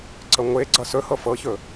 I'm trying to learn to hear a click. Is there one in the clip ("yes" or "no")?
yes